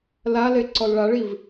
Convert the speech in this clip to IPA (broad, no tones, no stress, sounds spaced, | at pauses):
l a l e ǀ ɔ l ɭ a ɭ i v